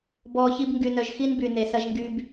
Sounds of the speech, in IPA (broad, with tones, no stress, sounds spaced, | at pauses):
b ɔː˨ ç i˧ b ŋ ɡ y˨ n œ˨ ʒ x i˦ n b y˨ n e˨ s ɐ˧ ʒ ŋ ɡ y˧ b